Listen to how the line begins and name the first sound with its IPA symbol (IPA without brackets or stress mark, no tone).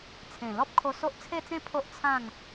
t͡sʰ